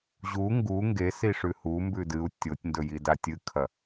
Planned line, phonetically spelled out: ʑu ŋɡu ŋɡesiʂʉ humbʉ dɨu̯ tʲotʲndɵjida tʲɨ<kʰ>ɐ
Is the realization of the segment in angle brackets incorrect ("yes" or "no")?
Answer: no